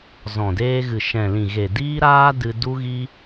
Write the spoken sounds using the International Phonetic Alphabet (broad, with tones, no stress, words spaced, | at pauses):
zɔ̃˨deː˧ɣɨ˨ ʃɛ̃˨lĩ˨ɣe˨ diː˦ɾaː˦ dɨ˧ du˦ɣi˦